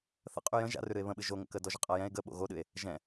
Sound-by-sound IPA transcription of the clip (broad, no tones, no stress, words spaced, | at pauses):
θə̰qʼy jə̃ ʒa̰rʉɾɨe̯ βə̃ɓɨ ʒoŋə̰kə dɔʒəqʼajɛ̃e̯ ɡə ɓo̰ɣoɗɨe̯ | ʒɛ̃